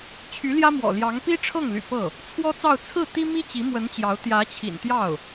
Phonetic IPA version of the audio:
t͡ɕʰy˧˥ljä˥mwɔ̰˨˩ljɑ˧˥ŋ pi˥ʈ͡ʂʰɤ˥˩ŋly̰˨˩ pɤ˥˩ | t͡sʰwɔ˥t͡sɑ˥˧ʊ̯ t͡sʰɹ̩˥˩ t̪i˥mi˥ t͡ɕi˧˥mwə˧˥nt͡ɕjɑ˧˥ʊ̯ t̪jä˧˥t͡ɕʰḭ˨˩nt̪jɑ˥˩ʊ̯

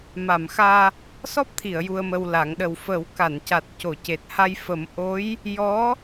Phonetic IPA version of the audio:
ma˨˩˨mxaː˧ | sɔ˦˥p̚t̪ʰi˨˩˨ə̯ ju˧ə̯mə˧wla˨˩˦ŋ ɗə˨˩wfə˨˩˦wka˨˩˨nca˨˩t̚ co˨˩˨ce˨˩t̚ha˧j fə˨˩˦m ʔo˧˥j | jɔ˧˥

